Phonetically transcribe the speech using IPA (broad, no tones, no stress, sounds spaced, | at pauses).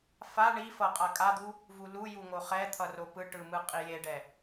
f a ɳ i f ʌ qʼ a kʼ a d̪ u | v u l u j u ŋ o χ ɛ t̪ʰ ʌ r o p ɯ ʈ ɯ m ɯ qʼ i j e ɖ ɛ